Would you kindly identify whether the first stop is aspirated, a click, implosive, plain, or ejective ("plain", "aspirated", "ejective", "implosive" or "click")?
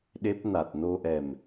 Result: implosive